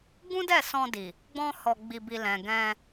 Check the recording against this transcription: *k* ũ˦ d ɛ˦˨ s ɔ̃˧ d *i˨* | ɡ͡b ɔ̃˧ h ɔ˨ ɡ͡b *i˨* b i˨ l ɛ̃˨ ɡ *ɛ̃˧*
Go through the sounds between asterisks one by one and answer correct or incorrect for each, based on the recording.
incorrect, correct, correct, correct

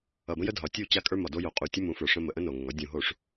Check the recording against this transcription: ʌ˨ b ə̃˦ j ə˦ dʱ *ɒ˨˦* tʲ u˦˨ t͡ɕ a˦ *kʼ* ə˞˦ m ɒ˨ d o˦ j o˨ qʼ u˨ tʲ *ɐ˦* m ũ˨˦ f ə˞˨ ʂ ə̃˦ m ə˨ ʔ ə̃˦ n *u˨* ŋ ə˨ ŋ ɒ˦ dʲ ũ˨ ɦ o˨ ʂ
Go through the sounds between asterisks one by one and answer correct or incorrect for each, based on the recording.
correct, correct, incorrect, incorrect

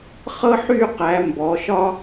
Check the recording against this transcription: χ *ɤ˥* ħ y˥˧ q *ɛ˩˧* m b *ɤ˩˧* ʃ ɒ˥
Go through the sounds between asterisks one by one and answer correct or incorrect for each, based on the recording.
correct, incorrect, incorrect

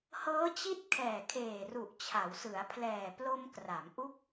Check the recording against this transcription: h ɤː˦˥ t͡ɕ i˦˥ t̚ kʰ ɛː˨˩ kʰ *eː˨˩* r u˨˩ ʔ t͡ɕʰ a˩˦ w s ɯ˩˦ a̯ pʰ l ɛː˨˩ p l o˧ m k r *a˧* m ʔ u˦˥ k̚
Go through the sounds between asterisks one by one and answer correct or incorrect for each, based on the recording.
correct, incorrect

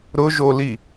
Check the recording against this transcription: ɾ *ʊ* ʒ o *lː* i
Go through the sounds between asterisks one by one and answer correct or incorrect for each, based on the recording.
correct, incorrect

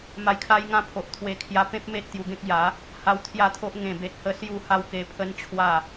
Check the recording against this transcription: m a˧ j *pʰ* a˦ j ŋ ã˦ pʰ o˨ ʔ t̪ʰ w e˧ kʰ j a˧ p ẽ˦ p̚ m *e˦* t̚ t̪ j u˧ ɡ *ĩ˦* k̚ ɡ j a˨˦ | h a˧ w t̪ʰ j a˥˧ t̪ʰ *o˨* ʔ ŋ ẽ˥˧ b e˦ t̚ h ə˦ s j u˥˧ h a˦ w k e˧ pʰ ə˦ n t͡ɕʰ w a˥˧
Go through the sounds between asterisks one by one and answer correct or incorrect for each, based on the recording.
incorrect, correct, incorrect, incorrect

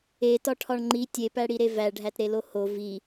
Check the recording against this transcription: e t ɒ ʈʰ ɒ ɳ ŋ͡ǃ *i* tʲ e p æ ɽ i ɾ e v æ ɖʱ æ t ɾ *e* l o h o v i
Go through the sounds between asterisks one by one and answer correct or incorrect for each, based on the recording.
correct, correct

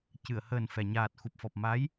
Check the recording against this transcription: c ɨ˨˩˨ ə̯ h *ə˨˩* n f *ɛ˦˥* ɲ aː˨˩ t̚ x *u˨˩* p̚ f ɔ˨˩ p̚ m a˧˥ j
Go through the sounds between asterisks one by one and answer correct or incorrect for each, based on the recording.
incorrect, incorrect, correct

